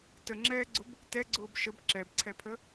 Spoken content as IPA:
t ə ŋ͡ǁ ɛː ɡ͡ǀ ʊ b | t ɛ ɡ͡ǀ ʊː b ʃ ə b ǁ ɛ b ǀʰ ɛ pʰ ə

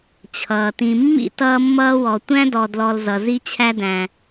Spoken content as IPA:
t͡ɕʰ ʌː˩ t ĩ˨ mː ḭ˥ t ʌː˦ mː ʌː˦ w ɔ˨ tʷ æ̃˥ d ɔ˨ d l ɔ˨ l z ʌ˩ z i˦ t͡ɕʰ æ˦ d æ̃˨

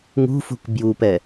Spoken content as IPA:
ŋ ṳ f ṳ k b j u p ɛ

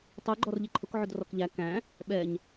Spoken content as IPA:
tˤ u ɡ͡ǃ ɔ r ʎ ɪ ǃʰ ʊ k ʕ ʊ d r ɔ k ʎ æ k æ̃ | ɓ ɛ ɲ

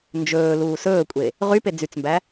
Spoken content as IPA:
n d͡ʒ ɵː l uː s ɵː kʷʼ e | ʁ y p e d͡z y t͡s m b æ

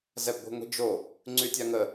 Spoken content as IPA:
z ɛ b ɡʷ i̤ ŋʷ i̤ d͡ʒ o | ŋ͡ǀ y tʲ a ŋ ə

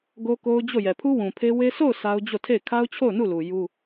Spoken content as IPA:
ɡ o˦ k o˦ ʊ̯ d͡ʑ o˦˨ j ɛ˨ pʰ u˦ w ũ˨ pʰ e˦ w e˦ s o˦˨ ʊ̯ s a˦ ʊ̯ d͡ʑ o˦˨ tʰ e˦˨ ɪ̯ kʰ a˦ ʊ̯ t͡ɕʰ o˦˨ ʊ̯ n u˦˨ l u˨ j u˦

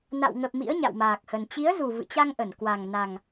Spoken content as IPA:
n a̰˧˨ w ŋ ə˨˩ p̚ m ḭ˧˥ ə̯ ɲ a̰˧˨ w m aː˨˩ k̚ h ə˨˩ n t͡ɕ i˨˦ ə̯ z u˨˩ v ɨ̰˧˨ t͡ɕ a˧ ŋ ʔ ə˧˩ n k w a˨˩ ŋ n a˨˩ ŋ

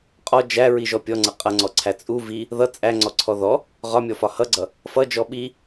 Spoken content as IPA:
qʼ ɔ d͡ʒ æ ɹ i ʒ ɔ pʲ ɔ ŋ͡ǀ ʌ qʼ ʌ ŋ͡ǀ ɔ ǀʰ æ t͡sʼ u v i | ð ʌ t͡sʼ æ ŋ͡ǀ ɔ ǀʰ ɔ ð ɔ | ʁ ɒ mʲ ɔ f ɒ h ʌ ɡ͡ǀ ʌ | f ʌ d͡ʒ ɔ ɓ i

